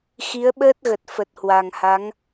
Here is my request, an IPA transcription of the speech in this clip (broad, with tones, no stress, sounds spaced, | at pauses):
x i˨˦ ə̯ ɓ əː˦˥ t̚ ɣ ə˨˩ t̚ f ə˨˩ t̚ h w a˨˩ ŋ h a˨˦ ŋ